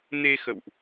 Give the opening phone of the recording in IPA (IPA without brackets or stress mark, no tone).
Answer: n